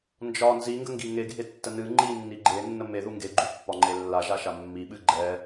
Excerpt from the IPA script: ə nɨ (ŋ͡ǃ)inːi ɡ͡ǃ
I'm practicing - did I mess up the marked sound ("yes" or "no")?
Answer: no